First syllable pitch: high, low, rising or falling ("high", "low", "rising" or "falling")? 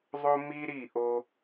high